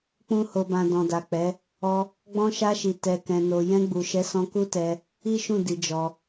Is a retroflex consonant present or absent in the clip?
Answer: absent